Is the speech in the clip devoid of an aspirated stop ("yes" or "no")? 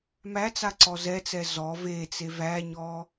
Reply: yes